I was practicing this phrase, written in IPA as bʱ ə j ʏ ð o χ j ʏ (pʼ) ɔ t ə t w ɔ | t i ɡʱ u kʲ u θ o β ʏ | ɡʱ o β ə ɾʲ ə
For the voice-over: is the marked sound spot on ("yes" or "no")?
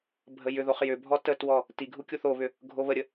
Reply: no